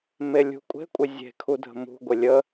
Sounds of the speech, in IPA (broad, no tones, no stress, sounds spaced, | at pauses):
m e lʲ ṳ kʷʼ e̤ kʷʼ ɪ zʲ e̤ kʰ u dʱ ə̤ m ṳ ɡʷ ɪ lʲ ə